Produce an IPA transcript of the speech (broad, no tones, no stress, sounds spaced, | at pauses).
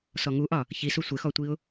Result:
s ɔ ŋ u ʔ ɒ | ç i s u sʷ ɪ x ɔ tʷ i ʊ̯